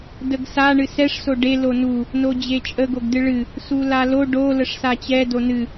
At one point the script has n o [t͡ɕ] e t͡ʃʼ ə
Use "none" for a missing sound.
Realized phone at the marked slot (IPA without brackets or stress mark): d͡ʑ